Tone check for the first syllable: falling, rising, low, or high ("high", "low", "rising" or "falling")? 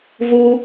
high